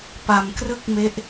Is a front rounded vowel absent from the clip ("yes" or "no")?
yes